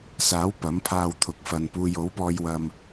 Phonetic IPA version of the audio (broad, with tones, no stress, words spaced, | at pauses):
saː˨˥w pɐ˨˥mpʰaː˧wt̪ʰʊ˨k̚ fɐ˨npuː˧j o˨˥wpɔː˧jwɐ˧m